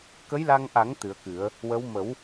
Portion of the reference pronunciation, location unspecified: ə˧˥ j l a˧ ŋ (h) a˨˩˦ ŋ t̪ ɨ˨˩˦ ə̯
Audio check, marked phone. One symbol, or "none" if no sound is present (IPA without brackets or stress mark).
ʔ